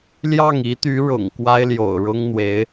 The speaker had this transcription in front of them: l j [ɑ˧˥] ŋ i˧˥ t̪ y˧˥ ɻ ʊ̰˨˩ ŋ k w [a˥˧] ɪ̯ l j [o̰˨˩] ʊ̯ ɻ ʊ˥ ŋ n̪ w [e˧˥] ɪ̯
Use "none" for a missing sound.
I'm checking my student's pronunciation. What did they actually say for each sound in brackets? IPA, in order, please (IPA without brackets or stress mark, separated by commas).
ɑ˥˩, a˥, o̰˨˩, e˧˥